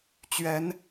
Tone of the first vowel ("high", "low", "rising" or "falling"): rising